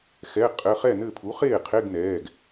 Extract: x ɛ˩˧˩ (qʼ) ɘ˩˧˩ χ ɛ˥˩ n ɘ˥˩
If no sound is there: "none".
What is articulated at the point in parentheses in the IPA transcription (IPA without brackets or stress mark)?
qʼ